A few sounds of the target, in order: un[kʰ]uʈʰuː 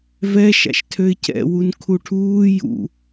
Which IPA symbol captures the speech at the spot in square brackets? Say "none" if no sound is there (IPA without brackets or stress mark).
kʰ